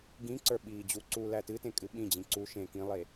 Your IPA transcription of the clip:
ɡ ĩ ǀ ə˞ ɓ iː d͡ʑ u ǀ u l æ t ɨ t ẽ kʼ ɨ ɓ ĩ d͡ʑ ĩ ǀ u ʃ ẽ k ĩ lˠ e

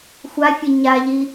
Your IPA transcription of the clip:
xʷ a fʲ e ɲ a ʎ i

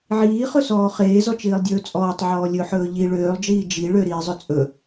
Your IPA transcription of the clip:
ʕ iː χ ɵ s ɔː χ eː z ɔ t͡ʃ iː lˠ dʲ ɵː t͡sʼ ɔː tˤ ʕ ɔː lʲ ɵ ħ ɵː ʎ i ɭ øː lˠ d͡ʒ iː d͡ʒ i ɭ ø ɾ iː zˤ ɵ t͡sʼ ɵ

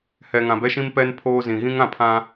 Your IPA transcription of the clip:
h ɛ˨ ŋ ã˨ b ɛ˦ ʃ ĩ˦ m p ɛ˦ n pʰ oː˦ z ĩ˨ ɣ ĩ˦ ŋ ã˨ pʰ ã˦

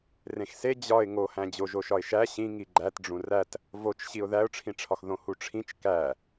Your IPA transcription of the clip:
r ẽ x s e d͡ʑ ɒ ɪ̯ ŋ o h æ̃ d͡ʑ o ʒ o ʃ ɒ ɪ̯ ʃ æ ɕ ĩ ŋ i ɡ͡ǃ æ t ɖ͡ʐ ũ r æ t | v o t͡ʃ ɕ i ʊ̯ ð æ ʊ̯ ʈ͡ʂʰ ĩ ʈ͡ʂʰ ɒ x ð õ h u ʈ͡ʂʰ ĩ t͡ʃ k æ

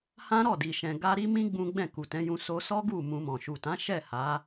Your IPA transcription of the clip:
h ã˦ ɾ ɔ˦˨ d i˨ ʃ ɛ̃˨ ɡ a˧ ɾ i˦ m ĩ˦ ɡ͡b ũ˦ ɡ͡b ɛ̃˦˨ k u˨ t ɛ̃˨˦ j ũ˧ s o˧ s ɔ˦ ɡ u˦˨ m ũ˧ m ɔ̃˨ ʃ u˨ t ã˨˦ ʃ ɛ˦˨ h a˨˦

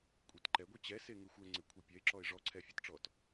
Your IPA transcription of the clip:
kʷʼ i t ǃ ɛ ɡʷ i t͡ɕ ɛ s e ŋ ɪ xʷ ɛ ŋ͡ǀ ɪ kʷʰ i pʲ ɛ ɪ̯ ǁ ɔ ɪ̯ ʐ ɔ ǀʰ ɛ fʲ a t ʈ͡ʂ ɔ t

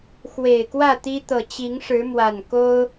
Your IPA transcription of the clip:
x w e˨˩ ɪ̯ k w ä˥˨ t̪ i˦ t̪ ɤ˨˩ t͡ɕ i˨˦ ŋ ʂ ɻ̩˨˦ m w a˨˩ n k o˦ ʊ̯

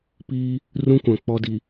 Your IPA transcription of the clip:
p iː˦ | r ũ˦ kʷ ã˨ k͡p ɔ˦ d i˨

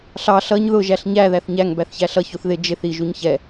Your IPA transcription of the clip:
ɬ ɑ ɬ ʌ ɲ ð ʊ ʒ æ ɬ ɲ æ ð æ θ ɲ æ ŋ b æ θ ç æ ɬ ʌ ç u θ ð ɪ d͡ʒ ɪ θ i ʒ u ɲ ç ɛ

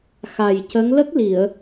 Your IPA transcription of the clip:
x a˨˩ j c ə˧˥ ŋ l ə˦˥ k̚ l i˨˩˨ ə̯

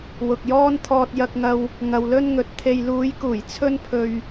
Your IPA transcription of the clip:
w ʊ˨ k̚ j ɔː˥ n t̪ʰ ɔː˧ t̚ j ɐ˧ k̚ ŋ ɐ˧ w | ŋ ɐ˨ w l ɵ˥ n ŋ ɵ˨ t̚ t̪ʰ e˧ j l uː˨˧ j k uː˨˩ j t͡sʰ ɵ˥ n pʰ ɵ˧ ɥ

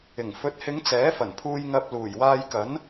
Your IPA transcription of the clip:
ɪ˨˩ ŋ f ɵ˨˥ t̚ h ɪ˨˧ ŋ t͡s ɛː˨˥ f ɐ˨˩ n pʰ uː˧ j ŋ ɐ˧ p̚ l uː˨˩ j w aː˧ j k ɐ˨˥ n

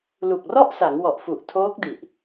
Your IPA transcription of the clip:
l u˨˩ k̚ r ɔ˥˩ ʔ s a˩˦ ŋ w ɔ˨˩ ʔ f u˨˩ ʔ tʰ oː˦˥ k̚ d i˨˩ ʔ

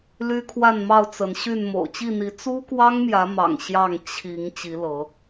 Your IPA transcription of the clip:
l y˦ kʰ w a˥˨ n m ɑ˥˨ ʊ̯ t͡s ə˨˦ n ɕ y˥˨ n m o̰˨˩ ʊ̯ t͡ɕ i˥˨ n̪ i˨˦ t͡s u˦ k w ɑ˦ ŋ m j ä˨˦ m ɑ̰˨˩ ŋ ɕ j ɑ˥˨ ŋ t͡ɕʰ i˨˦ ŋ t͡ɕ i˨˦ l ɤ˨˦

